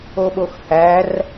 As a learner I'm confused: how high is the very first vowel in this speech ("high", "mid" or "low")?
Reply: mid